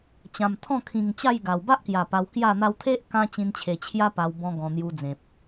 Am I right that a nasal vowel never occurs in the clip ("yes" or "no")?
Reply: no